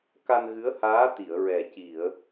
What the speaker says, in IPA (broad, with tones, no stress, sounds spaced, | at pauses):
k a˧ n ɣ ɨ˧˥ ə̯ h aː˧˥ t̪ i˨˩˨ ə̯ ɹ ɛ˨˩ c i˨˩˨ ə̯